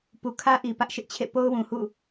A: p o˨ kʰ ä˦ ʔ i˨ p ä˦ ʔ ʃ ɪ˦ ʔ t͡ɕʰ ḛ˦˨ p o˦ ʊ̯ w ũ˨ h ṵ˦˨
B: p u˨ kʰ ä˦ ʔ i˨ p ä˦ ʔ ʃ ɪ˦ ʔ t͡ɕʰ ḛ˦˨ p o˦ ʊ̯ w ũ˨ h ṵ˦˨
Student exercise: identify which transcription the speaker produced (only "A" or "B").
B